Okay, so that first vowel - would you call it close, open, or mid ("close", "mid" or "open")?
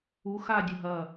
close